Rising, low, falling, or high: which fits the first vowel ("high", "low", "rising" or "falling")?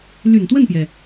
low